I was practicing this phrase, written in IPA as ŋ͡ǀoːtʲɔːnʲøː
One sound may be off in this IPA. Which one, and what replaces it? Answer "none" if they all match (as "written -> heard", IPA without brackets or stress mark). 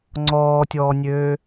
oː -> ɔː